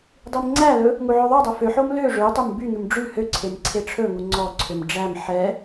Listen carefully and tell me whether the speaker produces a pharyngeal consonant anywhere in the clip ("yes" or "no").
yes